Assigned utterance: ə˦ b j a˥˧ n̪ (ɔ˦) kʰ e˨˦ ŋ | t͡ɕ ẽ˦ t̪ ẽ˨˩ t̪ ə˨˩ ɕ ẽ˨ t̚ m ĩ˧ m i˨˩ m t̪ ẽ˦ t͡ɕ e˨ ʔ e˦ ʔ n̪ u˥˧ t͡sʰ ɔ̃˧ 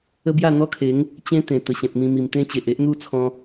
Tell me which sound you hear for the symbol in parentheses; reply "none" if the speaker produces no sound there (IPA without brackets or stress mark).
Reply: ɔ˦